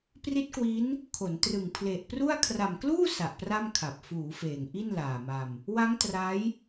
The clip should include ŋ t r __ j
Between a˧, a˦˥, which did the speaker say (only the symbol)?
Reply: a˦˥